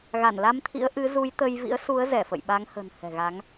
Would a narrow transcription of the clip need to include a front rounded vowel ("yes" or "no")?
no